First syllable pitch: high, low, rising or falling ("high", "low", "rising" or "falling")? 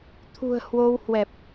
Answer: low